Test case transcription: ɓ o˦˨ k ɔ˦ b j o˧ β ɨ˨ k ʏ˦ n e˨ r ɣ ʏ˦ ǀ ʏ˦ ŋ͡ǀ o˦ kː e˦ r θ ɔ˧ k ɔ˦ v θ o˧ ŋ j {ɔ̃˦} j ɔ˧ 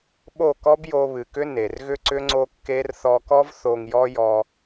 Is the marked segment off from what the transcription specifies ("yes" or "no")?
yes